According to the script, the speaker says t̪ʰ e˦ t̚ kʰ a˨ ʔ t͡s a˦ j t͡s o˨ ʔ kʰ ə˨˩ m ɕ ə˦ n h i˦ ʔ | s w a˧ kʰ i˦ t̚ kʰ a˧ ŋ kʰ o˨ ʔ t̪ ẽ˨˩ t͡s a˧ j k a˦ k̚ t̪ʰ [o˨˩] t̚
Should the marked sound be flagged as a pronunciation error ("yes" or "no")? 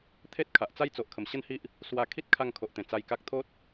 yes